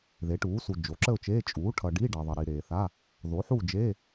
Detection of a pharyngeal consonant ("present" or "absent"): present